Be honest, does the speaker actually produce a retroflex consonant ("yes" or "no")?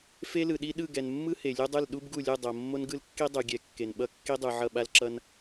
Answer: no